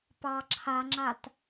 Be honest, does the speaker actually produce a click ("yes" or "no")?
yes